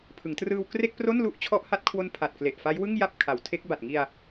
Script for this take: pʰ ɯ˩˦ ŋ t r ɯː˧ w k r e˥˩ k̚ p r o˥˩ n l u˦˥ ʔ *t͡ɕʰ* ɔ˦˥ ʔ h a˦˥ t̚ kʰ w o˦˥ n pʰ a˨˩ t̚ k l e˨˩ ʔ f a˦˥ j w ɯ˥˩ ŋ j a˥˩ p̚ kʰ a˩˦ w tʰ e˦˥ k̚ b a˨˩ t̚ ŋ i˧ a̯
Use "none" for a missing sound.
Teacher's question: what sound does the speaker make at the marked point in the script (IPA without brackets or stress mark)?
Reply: t͡ɕʰ